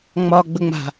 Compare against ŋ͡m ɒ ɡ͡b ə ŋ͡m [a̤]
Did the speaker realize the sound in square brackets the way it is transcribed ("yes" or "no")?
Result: yes